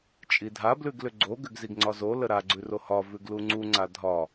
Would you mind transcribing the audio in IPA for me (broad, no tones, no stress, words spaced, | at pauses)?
t͡ʃʼidʱa blʉɡlʏɡ͡ǀo ɡʏɡziɡŋ͡ǀɒzo ləɾa ɡ͡ǀʉrohɒ vʉɡluŋ͡ǀu ŋ͡ǀadʱɒ